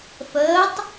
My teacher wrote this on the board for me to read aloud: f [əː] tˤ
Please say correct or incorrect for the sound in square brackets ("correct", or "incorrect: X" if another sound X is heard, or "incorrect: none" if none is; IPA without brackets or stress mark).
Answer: correct